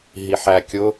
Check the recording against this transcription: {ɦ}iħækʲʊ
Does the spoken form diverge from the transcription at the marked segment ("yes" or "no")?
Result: no